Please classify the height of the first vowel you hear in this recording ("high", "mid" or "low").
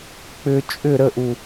high